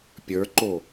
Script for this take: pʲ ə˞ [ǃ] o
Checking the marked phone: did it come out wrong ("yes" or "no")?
no